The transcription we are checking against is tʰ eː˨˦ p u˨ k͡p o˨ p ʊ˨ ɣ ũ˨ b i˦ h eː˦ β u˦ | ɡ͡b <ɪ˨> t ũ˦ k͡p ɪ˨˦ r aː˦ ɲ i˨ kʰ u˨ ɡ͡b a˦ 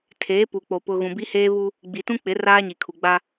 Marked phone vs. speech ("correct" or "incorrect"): incorrect